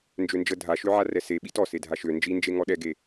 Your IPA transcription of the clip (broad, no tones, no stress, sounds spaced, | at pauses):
n d͡ʒ ø n d͡ʒ ə dʱ a ʃ ø ʕ a r ɛ s e ɓ i t ɔ s e dʱ a ʃ ø n d͡ʒ i n d͡ʒ e ŋ ɔ ɗ ɛ ɡ e